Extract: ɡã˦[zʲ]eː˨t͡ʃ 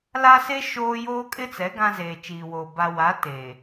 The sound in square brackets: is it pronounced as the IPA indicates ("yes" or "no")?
no